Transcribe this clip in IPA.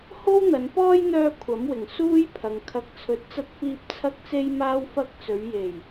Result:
h o˥ w n̪ ɐ˨˧ n p ɔː˥ j n̪ œː˥ kʷʰ ɐ˨˥ m w ɪ˨˩ ŋ s uː˥ j pʰ ɐ˨ ŋ kʰ ɐ˨ k̚ t͡sʰ ɵ˨˥ t̚ t͡s ɐ˧ t̚ f iː˧ p̚ t͡sʰ ɐ˥ k̚ t͡s e˥ j m aː˥ w f ɐ˧ k̚ t͡s ɵ˨˧ ɥ j e˨˩ j

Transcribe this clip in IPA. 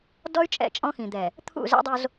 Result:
d ɔ˦ y̯ t͡ʃʼ ɛ̰˦˨ t͡ʃʼ ɔ̃˦ x ĩ˨ d̪ ɛ˨ | t̪ʰ ṵ˦˨ z ɛ̰˦ dˤ o˦ z

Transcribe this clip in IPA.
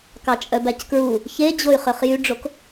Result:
k ɑ t͡ʃʼ œ b æ c k ɹ u | ç e d͡ʑ o y̯ χ ø χ j y ɖ͡ʐ o k

